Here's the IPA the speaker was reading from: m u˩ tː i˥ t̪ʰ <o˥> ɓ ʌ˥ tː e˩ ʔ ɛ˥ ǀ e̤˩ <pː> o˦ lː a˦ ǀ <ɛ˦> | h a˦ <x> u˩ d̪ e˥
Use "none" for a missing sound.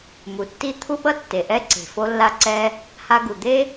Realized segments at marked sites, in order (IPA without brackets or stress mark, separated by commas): u˥, f, ɛ˦, ɡ